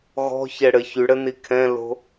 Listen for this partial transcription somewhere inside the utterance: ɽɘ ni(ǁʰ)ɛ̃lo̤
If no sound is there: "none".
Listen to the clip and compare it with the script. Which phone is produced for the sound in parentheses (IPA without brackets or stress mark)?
kʰ